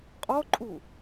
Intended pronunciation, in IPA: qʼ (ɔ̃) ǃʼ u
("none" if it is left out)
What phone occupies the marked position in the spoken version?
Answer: ɔ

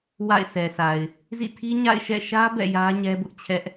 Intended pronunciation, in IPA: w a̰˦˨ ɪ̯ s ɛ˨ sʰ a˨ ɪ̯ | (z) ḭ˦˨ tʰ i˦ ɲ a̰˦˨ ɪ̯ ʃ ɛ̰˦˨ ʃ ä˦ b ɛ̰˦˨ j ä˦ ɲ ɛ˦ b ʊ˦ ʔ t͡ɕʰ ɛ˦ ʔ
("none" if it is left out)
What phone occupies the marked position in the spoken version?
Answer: z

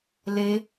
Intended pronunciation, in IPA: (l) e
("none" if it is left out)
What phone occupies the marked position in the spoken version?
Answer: l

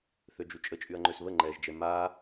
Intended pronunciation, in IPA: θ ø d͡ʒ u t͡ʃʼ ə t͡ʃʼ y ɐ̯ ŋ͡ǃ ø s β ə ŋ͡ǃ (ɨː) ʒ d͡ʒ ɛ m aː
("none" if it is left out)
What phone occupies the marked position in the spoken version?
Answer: ɛː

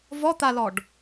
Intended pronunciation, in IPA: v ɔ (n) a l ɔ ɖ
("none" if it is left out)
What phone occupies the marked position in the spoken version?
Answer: t̪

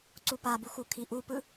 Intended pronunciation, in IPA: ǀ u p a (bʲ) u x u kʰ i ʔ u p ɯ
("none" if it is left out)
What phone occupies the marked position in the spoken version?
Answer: b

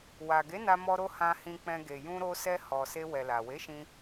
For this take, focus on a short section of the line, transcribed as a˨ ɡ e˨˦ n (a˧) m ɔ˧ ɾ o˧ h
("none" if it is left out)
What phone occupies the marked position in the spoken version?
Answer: a˧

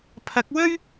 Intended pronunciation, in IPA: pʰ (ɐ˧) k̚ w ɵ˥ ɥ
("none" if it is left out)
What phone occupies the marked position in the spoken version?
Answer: ɐ˨˥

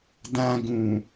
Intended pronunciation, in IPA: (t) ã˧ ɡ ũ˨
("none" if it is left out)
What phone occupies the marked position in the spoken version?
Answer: d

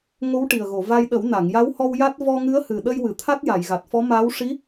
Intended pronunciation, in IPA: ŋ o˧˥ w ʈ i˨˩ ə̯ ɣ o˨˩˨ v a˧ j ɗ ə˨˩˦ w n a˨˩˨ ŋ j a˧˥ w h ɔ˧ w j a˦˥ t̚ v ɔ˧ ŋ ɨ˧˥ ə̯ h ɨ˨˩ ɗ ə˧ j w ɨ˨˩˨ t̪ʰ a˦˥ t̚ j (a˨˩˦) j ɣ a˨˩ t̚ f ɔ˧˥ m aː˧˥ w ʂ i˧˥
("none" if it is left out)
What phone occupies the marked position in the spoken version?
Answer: a˨˩˨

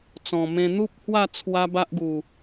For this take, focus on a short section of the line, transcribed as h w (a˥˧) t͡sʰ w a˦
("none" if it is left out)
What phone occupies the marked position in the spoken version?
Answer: a˥˧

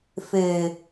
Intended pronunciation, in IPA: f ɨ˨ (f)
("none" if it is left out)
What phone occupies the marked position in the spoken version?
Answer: none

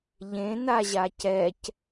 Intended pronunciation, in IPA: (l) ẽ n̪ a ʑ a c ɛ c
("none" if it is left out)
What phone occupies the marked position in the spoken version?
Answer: ʎ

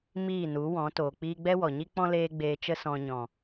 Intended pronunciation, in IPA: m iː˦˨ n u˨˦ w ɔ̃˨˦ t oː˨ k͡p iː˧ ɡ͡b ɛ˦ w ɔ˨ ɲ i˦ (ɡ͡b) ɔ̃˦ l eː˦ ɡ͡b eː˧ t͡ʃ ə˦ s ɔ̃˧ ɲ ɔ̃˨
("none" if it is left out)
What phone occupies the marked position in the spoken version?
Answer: k͡p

